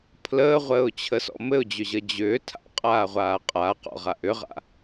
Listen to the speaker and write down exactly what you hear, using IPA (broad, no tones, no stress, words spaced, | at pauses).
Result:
pʰləːʁʷəːʊ̯t͡ɕʰəsɔ̰ mɘʊ̯d͡ʑʏʑə d͡ʑʏː tʰa̰qʼaːʁʷaː qʼaːqɔ̰ʁaʔ ʏʁa̰